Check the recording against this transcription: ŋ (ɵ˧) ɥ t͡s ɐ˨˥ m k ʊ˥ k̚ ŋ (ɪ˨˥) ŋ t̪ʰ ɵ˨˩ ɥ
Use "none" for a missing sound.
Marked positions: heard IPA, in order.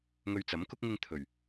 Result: ɵ˧, ɪ˧

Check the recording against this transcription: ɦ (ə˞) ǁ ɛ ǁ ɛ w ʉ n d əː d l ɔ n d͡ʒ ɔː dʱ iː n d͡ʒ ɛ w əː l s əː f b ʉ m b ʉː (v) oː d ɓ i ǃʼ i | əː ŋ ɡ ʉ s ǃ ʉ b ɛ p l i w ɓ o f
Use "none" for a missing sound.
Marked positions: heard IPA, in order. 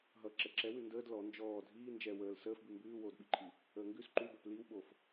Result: ʌ, w

